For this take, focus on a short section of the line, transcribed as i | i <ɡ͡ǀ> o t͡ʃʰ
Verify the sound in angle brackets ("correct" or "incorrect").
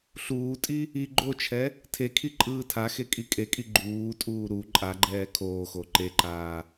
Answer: incorrect